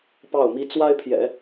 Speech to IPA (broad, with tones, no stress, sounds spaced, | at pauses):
p ɑ˥˩ ʊ̯ m i˥ t͡s w a˥ ɪ̯ pʰ j ɛ̰˨˩˦